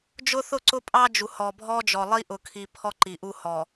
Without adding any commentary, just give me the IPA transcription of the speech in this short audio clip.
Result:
d͡ʒ ʊ˦ θ ʊ˦˨ ǀ ʊ˦ pʼ ɑ˦ d͡ʒ u˨ h ɔ˨ bʱ ɔ˦ d͡ʒ ɔ˨ lˠ i˦ ʔ ʊ˨ kʰ i˨ pʰ ɔ˦ ǃ i˨ ʔ u˦ h ɔ˨

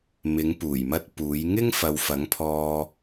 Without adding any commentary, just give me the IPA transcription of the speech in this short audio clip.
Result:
m ɪ˨˥ ŋ p uː˨˩ j m ɐ˥ t̚ p uː˨˥ j ŋ ɪ˥ ŋ f ɐ˨ w f ɐ˨˥ ŋ pʰ ɔː˧

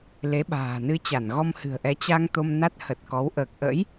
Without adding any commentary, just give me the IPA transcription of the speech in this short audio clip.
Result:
l e˨˦ ɓ a̤ː˨˩ n ɨ˧ t͡ɕ a˧˩ n ɣ ɔ˧ m h ɨ̤˨˩ ə̯ ʔ ɛ˨˦ t͡ɕ a˧ ŋ t̪ o˧ m n a˦˥ t̚ h ə˨˩ t̚ k ɔ˨˦ w ʔ əː˨˩ k̚ ʔ ə̰˧˥ j

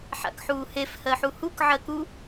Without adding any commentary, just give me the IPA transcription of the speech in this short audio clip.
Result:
ħ a̰ k ħ uː h e f h ɜ ħ u h u k ʕ ɜ k u

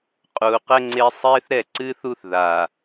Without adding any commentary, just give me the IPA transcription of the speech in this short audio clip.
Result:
qʼ uː˨ q ɘ˦ ŋ͡ǀ e˦ sˤ eː˦ θ ɾ ɛ˦˨ ǀ ɨː˦ θ u˦ θ ð a˨

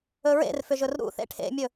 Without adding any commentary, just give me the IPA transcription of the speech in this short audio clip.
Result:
ɵ ɹ ḛ r f ʏ ʒ ɵ r ɾ ṵ θ ḛ ʈʰ ḛ mʲ ɵ

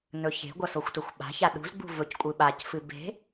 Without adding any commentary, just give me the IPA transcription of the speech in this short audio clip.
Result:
n ɵ ç e̤ ɡʷ ɐ s o xʷ t ɵ xʷ ɓ a̤ ç a ɗ ṳ z ɡ͡b ṳ v ɵ c kʷʼ ɨ ɓ a c f ɨ b e̤

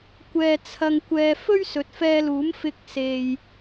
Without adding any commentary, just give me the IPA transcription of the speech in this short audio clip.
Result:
kʷ ɛː˧ t͡sʰ ɐ˧ ŋ kʷ ɛː˧ f ɵ˥ ɥ s ɵ˨ t̚ f ɛː˧ l uː˨˥ m f ɪ˧ k̚ s e˨ j

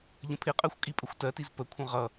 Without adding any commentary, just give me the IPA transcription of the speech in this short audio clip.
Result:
ʎ ə̃ pʰ ɪ qʼ ɜ xʷ kʼ i pʼ ə xʷ t ɜ t i z p ə kʷʰ ə̃ ʁ ʌ

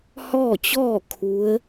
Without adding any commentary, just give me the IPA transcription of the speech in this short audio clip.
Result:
h ɔː˥˨ t͡ɕ ɔː˥˨ kʰ u˧˥ ə̯

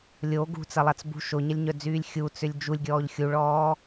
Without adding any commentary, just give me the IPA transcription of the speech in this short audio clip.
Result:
lʲ o ɡ ṳ t͡s ɐ lˠ a t͡s b ṳ ʃ o ɲ ɐ lʲ ɲ œ d͡z yː lʲ xʲ u t͡s ʏ lʲ d͡ʒ u lʲ ɡʲ ɔː ʎ xʲ u ɭ ɔː

